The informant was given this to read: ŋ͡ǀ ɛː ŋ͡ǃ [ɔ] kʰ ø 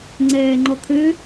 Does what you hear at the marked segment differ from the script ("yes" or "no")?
no